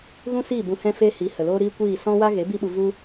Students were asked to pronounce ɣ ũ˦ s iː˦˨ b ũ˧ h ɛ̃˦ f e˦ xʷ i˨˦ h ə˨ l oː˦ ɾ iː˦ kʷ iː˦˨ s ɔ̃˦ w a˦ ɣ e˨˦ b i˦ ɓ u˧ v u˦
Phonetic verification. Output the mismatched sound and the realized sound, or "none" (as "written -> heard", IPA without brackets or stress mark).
xʷ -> h